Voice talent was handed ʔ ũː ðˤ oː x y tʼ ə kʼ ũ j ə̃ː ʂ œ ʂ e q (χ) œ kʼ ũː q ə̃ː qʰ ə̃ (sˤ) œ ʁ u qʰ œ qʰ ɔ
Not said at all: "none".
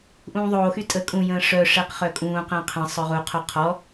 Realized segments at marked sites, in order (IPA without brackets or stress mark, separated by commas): χ, sˤ